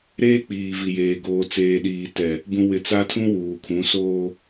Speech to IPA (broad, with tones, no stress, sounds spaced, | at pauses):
ɾ eː˦ k͡p iː˨ v i˨ j eː˨ ɡ oː˨ t͡s eː˨ ɗ iː˨ t ɛ˨ | b ũ˨ w ɪ˨ t͡s a˦ tʰ ũ˦ w uː˨ kʰ ũ˨˦ s oː˦